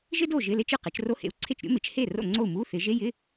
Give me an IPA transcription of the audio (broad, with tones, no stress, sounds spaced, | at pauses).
ʒ ɪ˥ d o˥˩ ʒ ɪ˧˥˧ l e˥ t͡ʃ ɯ˥˩ q e˩˧ t͡ʃ r o˧˥˧ h ḛ˩˥ u̯ ǀʰ e˥˩ t͡ʃ ɾʲ o̰˥ m ɪ˩˥ t͡ʃ h e˥˩ r o̰˥˩ ŋ͡ǀ o˥˩ u̯ m u˧˥˧ θ ɪ˩˧ ʒ e˧˥˧ j ɪ˧˥˧